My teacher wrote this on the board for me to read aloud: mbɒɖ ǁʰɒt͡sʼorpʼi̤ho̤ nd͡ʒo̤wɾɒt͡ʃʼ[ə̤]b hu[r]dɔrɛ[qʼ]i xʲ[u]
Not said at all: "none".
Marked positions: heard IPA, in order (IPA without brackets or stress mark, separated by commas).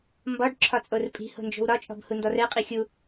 ɔ̤, n, qʼ, u